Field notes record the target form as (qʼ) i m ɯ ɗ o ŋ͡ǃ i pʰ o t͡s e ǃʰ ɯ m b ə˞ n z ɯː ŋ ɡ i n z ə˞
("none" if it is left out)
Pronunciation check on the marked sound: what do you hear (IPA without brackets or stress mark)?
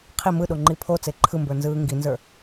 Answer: qʰ